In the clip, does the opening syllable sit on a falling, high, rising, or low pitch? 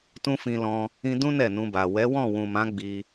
high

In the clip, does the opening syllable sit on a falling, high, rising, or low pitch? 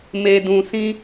low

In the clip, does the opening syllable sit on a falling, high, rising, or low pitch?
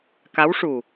rising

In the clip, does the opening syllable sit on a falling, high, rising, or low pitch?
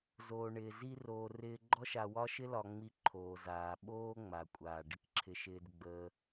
low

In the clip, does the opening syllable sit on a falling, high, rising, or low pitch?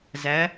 rising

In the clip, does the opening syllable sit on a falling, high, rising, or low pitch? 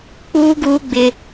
high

